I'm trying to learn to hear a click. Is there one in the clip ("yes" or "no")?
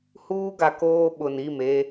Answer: no